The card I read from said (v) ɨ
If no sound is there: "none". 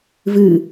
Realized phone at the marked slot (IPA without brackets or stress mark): v